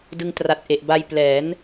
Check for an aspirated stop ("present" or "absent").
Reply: absent